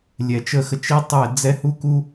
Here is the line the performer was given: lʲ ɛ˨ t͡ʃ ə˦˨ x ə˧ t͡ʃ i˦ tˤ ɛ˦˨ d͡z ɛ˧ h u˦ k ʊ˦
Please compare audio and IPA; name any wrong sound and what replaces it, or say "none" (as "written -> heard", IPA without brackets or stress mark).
ʊ˦ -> u˦